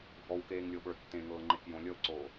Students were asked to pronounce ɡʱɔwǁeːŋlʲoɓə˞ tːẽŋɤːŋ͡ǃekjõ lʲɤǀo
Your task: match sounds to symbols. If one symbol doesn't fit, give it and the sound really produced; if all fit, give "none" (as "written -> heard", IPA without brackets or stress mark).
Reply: ǁ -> k